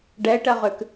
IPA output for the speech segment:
ɖɛɪ̯ʈɜʁʉk

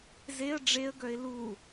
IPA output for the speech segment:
zeə̯ ɖ͡ʐeə̯ɡœɪ̯ lu

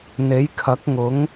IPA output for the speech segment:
n̪e˨˥jkʰɐ˨˥k̚ŋʊ˨˥ŋ

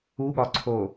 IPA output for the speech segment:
uɠɒǀʰo

